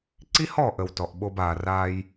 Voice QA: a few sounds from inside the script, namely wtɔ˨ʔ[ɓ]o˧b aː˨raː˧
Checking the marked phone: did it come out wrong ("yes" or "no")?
no